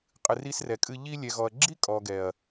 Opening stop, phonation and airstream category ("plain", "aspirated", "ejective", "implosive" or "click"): ejective